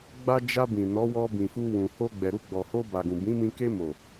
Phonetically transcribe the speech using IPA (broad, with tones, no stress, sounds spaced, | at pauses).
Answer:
ɡ͡b a˧ d͡ʒ a˧ b ĩ˨ n ɔ˨˦ w ɔ˧ b ĩ˨ f u˧ w ũ˨ h o˧ ɡ͡b ɛ˨ ɾ u˧ ɡ͡b ɔ˨ h o˧ b a˨ ɡ ũ˨ b ĩ˨˦ m ĩ˧ k e˧ m o˨